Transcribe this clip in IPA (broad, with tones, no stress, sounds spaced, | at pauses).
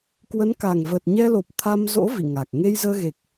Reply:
k w ə˨˦ n k a˨˩ ŋ v əː˨˩ t̚ ɲ ɛ˧ l o˨˩ p̚ t̪ʰ a˧ m z o̰˧˥ v ḭ˧˨ ŋ a˨˩ k̚ ŋ e˧ j z əː˧ ɣ e˨˩ k̚